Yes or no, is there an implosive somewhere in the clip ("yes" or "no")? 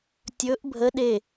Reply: yes